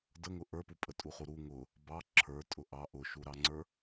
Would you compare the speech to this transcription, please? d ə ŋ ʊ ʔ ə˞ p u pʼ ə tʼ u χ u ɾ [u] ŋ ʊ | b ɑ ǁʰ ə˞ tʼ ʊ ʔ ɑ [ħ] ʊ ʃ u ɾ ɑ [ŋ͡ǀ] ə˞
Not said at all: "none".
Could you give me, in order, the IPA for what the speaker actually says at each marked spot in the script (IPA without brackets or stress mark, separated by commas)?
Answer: u, ʔ, ŋ͡ǀ